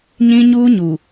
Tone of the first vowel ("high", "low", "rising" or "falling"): high